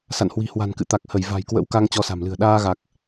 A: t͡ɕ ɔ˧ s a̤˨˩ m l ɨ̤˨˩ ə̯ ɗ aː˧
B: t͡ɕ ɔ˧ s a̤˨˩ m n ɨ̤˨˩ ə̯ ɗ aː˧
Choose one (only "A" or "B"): A